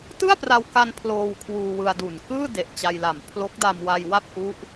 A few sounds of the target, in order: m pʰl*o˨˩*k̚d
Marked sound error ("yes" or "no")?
yes